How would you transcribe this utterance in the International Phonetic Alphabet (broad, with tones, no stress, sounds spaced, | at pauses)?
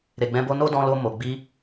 ɾ e˨ ɡ͡b ɛ̃˧ b o˧ n o˦ d ɔ̃˧ l o˧ m o˨ ɡ͡b i˧